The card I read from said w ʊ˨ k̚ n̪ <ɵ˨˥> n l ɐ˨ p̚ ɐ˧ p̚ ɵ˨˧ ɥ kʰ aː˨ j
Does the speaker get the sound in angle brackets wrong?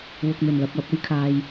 yes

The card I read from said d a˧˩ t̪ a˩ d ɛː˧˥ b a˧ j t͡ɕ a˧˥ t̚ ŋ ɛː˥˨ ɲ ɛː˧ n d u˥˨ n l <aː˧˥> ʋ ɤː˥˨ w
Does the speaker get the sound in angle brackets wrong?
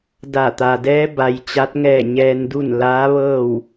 no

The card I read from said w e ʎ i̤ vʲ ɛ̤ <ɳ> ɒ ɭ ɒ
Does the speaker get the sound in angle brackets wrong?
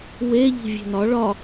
yes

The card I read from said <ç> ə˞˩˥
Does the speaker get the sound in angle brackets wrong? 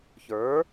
no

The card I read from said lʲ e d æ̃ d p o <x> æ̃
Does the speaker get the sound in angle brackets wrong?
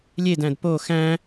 no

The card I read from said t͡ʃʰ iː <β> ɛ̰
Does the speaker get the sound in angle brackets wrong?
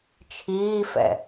yes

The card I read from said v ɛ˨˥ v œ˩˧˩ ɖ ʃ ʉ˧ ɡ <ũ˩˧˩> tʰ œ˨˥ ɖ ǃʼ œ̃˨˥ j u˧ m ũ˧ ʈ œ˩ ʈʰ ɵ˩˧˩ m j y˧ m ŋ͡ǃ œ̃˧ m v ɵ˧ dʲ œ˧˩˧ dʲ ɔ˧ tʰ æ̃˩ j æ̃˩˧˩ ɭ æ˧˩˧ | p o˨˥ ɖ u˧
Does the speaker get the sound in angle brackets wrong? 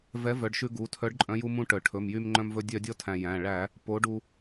yes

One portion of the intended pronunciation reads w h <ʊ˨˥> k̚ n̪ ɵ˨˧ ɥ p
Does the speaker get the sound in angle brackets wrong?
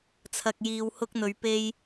yes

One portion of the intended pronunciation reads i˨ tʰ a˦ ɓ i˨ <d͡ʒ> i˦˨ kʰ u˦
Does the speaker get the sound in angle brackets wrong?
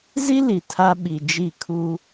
no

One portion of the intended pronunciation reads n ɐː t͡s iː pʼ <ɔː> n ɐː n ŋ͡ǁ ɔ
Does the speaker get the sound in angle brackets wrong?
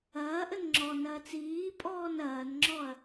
no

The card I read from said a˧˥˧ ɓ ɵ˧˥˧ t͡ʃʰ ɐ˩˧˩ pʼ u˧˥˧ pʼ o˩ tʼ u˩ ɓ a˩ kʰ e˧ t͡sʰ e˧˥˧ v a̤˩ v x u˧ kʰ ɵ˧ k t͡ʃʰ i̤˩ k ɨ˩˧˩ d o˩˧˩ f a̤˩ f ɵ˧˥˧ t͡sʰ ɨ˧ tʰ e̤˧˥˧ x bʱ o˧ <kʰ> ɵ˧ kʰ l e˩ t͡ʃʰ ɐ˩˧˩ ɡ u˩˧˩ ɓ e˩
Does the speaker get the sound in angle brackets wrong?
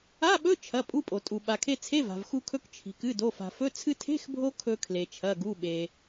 no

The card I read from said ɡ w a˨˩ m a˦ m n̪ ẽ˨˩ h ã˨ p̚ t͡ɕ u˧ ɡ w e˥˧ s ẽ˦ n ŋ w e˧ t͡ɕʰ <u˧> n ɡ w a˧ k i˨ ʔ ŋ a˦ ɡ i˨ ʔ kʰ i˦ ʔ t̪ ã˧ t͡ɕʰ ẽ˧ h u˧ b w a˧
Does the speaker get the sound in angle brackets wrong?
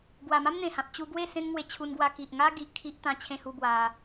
no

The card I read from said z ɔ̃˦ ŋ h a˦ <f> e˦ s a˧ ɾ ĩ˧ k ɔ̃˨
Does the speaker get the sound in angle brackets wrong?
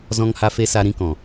no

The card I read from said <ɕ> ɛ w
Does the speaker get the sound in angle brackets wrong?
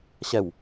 no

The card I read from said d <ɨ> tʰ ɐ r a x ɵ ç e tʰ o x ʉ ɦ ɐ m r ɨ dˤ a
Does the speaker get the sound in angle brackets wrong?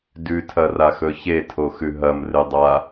yes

